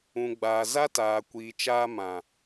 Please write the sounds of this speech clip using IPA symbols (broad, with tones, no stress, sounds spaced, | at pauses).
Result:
ũ˨ ɡ͡b aː˨ z a˦ t aː˨ kʷ iː˨ t͡ʃ aː˧ m ã˨